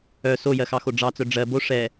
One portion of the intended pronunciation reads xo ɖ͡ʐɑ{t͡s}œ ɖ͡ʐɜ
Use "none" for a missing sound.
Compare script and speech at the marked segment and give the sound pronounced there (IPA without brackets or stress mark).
t͡s